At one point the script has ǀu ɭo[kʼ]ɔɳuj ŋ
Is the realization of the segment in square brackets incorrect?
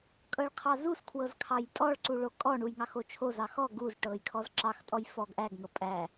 no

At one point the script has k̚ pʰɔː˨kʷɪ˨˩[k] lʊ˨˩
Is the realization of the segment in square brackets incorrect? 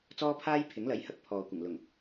yes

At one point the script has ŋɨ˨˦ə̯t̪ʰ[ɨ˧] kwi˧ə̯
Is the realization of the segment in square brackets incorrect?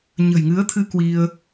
no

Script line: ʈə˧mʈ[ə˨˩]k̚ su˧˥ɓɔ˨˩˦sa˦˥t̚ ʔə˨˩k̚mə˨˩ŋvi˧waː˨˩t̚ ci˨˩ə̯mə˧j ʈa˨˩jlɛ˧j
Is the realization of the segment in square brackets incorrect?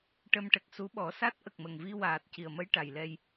no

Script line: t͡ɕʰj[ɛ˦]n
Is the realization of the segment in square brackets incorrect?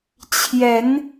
yes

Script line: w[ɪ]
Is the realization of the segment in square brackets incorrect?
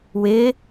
no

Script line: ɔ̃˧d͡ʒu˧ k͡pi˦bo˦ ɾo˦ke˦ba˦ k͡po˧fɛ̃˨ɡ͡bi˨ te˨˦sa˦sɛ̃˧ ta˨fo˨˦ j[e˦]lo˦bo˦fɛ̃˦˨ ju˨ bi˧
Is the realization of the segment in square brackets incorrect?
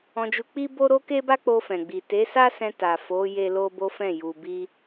no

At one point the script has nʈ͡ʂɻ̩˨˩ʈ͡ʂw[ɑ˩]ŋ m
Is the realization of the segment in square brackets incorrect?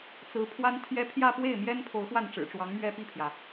yes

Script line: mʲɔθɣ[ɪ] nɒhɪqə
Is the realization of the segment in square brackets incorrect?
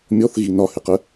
yes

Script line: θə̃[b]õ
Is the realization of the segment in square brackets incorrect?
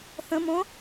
yes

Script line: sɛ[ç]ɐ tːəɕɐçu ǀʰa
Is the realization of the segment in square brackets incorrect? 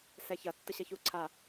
no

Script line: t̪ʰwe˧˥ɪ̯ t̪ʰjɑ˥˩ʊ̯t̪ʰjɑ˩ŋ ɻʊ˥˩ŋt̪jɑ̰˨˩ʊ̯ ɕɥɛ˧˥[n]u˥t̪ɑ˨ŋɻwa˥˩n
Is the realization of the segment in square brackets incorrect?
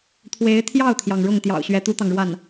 yes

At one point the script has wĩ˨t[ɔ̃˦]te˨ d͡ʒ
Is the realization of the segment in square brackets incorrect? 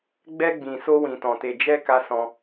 yes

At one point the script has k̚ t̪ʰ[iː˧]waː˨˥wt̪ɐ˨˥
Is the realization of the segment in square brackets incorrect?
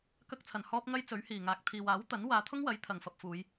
yes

